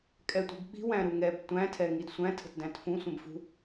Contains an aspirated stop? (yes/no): yes